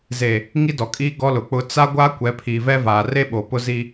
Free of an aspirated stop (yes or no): no